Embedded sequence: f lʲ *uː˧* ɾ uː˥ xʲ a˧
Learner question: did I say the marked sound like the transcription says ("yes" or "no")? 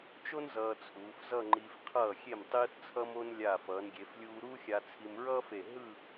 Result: yes